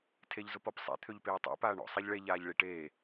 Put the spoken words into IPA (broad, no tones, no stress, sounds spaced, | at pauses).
tʰ e ʎ z ʊ p ɔ p sˤ ḛ t̪ʰ ø ʎ p eː tˤ ḛ p aː ɳ ɔ̰ sˤ e ʎ ɭ e ʎ aː ʎ ɭ i ʈ eː